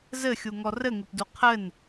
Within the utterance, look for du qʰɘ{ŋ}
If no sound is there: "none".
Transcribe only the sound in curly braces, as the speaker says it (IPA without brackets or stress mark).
n